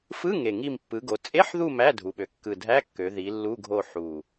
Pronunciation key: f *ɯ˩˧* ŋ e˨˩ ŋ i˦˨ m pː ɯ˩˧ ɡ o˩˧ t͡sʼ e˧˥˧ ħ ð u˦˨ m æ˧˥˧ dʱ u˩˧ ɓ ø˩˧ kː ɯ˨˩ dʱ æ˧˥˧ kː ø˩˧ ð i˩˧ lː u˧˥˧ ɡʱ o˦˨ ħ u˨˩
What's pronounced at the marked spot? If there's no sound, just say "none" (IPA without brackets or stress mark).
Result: ɯ˧˥˧